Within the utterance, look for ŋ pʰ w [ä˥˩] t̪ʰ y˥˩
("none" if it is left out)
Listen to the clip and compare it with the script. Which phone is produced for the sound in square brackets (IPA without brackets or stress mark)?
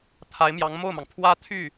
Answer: ä˥